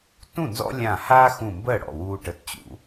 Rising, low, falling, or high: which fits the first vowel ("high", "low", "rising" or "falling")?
falling